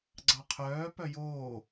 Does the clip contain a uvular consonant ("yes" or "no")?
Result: yes